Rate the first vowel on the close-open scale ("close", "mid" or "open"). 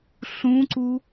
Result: close